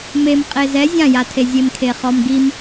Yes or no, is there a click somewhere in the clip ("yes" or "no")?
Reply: no